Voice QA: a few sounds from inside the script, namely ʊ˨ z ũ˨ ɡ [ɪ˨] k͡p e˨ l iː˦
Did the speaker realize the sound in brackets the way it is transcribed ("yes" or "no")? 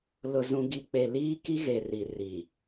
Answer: no